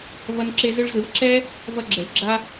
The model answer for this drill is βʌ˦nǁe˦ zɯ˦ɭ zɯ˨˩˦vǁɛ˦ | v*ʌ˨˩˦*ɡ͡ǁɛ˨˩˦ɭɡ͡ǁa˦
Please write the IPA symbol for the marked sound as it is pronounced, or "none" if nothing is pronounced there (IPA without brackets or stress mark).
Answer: ʌ˦